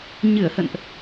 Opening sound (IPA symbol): ɲ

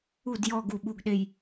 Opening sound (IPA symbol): u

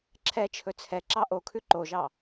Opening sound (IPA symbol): ǁʰ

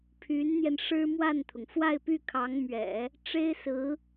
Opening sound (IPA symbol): pʰ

